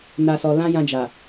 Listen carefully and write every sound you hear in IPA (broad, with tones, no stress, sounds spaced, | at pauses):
n a˦ s ɔ˧ l ã˦ j ã˧ d͡ʒ a˨